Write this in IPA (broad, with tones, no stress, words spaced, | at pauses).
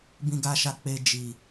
bĩ˨ɡa˨ʃa˨ k͡pe˨ d͡ʒi˨